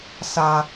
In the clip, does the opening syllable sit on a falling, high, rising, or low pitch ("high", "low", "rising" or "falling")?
high